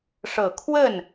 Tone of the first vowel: low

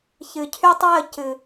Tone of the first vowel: low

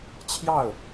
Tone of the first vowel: falling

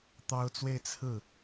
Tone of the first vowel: high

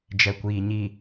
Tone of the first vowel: low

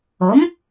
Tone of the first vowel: rising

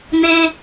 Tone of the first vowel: high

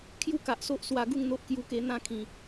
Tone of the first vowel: high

